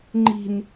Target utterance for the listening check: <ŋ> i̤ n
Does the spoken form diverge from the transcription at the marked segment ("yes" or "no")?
yes